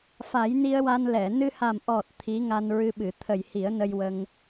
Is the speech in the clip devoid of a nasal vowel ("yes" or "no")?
yes